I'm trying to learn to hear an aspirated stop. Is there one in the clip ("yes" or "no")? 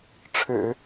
yes